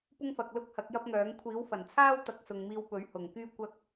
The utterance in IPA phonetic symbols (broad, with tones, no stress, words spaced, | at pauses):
pʊ˥ŋfɐ˨k̚ lʊ˥k̚hɐ˨˥k̚jɐ˥p̚ŋœː˨˥ŋ kʷʰiː˨˥wfɐ˨˩nt͡sʰaː˥w t̪ɐ˨˥k̚sʊ˨ŋmiː˧w pɵ˨˥ɥhʊ˨˩ŋkyː˥ kʷɐ˥k̚